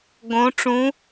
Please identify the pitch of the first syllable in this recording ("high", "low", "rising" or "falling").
rising